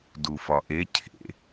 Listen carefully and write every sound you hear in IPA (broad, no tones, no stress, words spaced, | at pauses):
dufɒʔe cʰḛ